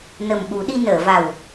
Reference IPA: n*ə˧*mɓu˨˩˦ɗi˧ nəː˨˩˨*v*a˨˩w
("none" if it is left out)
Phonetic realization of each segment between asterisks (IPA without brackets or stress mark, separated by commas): ə˨˩, v